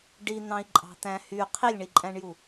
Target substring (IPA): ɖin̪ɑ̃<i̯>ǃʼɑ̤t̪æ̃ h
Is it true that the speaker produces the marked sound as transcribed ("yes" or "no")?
yes